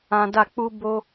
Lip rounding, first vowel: unrounded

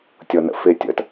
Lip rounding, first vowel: unrounded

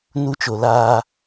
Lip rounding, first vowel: rounded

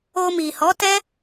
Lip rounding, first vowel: rounded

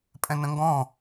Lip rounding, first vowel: unrounded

